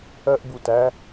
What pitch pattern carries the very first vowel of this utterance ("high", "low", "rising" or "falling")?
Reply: high